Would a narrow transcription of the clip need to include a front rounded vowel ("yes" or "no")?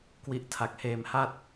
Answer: no